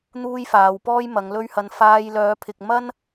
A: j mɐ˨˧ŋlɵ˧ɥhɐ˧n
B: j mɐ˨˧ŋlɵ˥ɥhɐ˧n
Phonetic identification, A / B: B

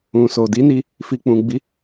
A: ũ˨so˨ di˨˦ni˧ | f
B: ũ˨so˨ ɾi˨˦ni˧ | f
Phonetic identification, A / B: A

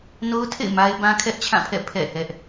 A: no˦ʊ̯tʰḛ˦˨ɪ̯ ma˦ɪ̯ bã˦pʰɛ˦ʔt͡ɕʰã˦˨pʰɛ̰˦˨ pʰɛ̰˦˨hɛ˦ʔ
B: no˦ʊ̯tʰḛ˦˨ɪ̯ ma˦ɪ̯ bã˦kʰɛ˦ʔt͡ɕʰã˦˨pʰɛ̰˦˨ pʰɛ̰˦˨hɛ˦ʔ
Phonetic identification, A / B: B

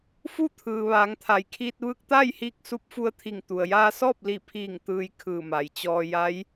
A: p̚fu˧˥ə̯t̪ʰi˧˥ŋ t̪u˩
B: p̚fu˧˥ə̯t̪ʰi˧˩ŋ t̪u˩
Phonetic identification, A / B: B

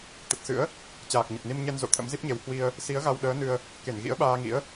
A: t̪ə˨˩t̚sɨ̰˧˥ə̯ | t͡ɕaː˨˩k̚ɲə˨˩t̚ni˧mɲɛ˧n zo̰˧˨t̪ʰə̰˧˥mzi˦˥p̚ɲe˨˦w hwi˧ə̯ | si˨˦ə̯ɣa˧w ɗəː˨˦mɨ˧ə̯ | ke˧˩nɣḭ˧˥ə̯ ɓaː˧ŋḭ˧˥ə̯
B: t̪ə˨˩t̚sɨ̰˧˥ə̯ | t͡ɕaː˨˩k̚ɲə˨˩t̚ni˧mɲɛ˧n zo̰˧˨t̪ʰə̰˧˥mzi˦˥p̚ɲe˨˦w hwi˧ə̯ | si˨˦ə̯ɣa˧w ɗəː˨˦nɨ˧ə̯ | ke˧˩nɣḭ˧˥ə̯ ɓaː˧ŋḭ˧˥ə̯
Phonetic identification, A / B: B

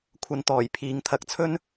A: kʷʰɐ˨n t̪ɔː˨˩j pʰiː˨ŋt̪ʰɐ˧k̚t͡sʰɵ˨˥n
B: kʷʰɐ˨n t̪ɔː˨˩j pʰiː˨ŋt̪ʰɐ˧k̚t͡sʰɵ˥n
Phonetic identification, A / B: B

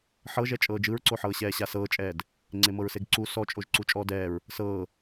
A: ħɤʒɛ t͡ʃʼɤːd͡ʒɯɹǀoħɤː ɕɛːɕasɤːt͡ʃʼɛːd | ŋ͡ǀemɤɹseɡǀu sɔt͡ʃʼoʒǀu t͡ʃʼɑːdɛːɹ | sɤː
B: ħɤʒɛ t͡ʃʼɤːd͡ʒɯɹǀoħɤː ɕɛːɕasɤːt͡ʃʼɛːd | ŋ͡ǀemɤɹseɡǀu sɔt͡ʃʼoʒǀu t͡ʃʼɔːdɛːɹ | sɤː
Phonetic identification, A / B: B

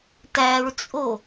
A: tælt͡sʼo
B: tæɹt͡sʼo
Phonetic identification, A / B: B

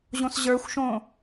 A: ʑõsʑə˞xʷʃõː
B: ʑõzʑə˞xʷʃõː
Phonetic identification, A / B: A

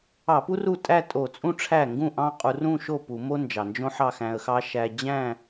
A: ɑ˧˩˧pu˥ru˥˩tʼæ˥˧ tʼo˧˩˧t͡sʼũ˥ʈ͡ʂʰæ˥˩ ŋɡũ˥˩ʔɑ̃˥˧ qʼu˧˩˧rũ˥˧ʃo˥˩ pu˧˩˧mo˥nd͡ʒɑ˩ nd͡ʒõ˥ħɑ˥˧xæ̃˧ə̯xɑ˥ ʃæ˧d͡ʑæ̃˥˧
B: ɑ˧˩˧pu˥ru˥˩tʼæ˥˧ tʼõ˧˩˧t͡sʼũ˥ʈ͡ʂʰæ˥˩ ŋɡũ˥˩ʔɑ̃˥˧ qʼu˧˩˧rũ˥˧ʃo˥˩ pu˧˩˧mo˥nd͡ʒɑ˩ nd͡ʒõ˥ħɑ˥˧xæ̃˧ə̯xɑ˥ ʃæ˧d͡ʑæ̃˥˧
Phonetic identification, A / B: A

